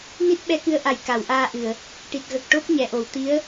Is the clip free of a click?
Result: yes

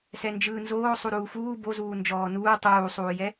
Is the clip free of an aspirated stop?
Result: yes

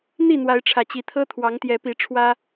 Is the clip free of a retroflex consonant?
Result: no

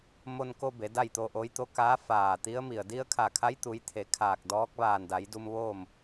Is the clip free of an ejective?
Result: yes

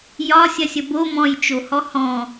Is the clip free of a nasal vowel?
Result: no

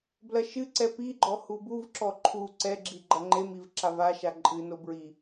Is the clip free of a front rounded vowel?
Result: yes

